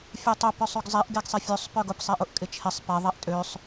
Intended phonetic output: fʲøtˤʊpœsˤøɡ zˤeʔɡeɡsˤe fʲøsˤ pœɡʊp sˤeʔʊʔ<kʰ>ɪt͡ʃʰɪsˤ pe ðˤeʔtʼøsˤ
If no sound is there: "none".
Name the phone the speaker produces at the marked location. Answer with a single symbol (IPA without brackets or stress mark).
kʼ